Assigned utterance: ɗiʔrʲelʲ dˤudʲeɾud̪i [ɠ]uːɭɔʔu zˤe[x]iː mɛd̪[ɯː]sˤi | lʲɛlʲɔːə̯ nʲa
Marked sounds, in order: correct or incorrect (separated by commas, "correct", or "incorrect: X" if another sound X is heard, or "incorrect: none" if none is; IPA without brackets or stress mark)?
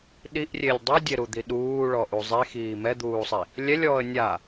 incorrect: ɗ, correct, incorrect: uː